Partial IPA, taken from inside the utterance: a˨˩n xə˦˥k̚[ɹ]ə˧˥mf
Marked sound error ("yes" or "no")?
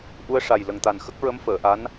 no